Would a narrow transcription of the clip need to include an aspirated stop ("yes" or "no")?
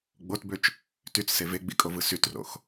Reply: no